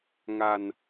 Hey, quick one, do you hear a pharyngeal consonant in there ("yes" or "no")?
no